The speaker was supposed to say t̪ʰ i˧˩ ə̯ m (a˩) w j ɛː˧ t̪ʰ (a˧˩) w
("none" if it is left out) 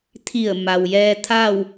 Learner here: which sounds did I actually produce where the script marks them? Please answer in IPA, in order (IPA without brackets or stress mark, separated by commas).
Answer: a˩, a˥˨